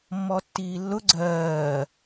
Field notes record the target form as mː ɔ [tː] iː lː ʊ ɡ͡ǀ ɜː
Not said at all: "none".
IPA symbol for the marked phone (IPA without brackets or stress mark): tː